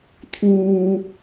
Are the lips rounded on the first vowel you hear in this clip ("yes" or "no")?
yes